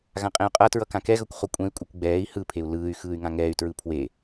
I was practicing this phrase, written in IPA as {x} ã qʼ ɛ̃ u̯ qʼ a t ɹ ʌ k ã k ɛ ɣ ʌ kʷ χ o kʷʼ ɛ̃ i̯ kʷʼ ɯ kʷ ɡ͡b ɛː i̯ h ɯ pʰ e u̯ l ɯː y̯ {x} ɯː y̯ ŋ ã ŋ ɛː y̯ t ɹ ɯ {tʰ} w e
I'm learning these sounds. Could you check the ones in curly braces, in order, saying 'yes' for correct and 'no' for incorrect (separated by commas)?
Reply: no, yes, no